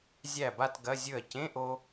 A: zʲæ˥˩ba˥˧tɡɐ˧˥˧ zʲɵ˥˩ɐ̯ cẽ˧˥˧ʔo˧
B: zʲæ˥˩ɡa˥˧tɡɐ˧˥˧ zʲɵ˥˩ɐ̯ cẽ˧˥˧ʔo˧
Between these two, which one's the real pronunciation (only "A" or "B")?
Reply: A